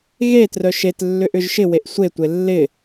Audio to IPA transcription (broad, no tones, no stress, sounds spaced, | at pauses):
ɣ e t r œ ʃ e t lː ʏ ʔ ʏ ʒ ʃ ɪ w e ʔ sʷ e tʷ e lː ɪ